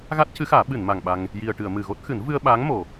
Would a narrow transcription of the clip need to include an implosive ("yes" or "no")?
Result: yes